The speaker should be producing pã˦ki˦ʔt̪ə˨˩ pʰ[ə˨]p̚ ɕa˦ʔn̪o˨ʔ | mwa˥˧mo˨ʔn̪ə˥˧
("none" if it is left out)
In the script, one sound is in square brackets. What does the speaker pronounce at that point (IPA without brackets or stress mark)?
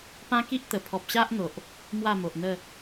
ɔ˨